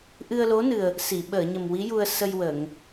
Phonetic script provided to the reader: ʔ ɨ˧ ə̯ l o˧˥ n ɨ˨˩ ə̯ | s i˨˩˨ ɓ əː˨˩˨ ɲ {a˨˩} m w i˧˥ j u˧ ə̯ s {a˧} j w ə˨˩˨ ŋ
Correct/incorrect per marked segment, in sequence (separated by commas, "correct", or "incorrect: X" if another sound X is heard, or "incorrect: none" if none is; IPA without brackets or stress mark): incorrect: ə˨˩, incorrect: ə˧